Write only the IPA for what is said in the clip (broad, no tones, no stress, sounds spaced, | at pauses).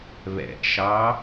β ɛ̰ ʔ ʃ ɑ